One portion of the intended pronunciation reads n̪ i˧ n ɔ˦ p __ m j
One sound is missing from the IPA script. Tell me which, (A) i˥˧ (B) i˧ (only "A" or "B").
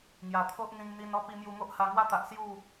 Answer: B